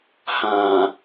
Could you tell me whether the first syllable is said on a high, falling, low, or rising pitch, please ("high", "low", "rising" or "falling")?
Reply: low